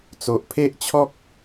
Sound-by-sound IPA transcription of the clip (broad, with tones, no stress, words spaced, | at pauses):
t͡so˨ʔpʰe˦ʔt͡ɕʰɔ˦k̚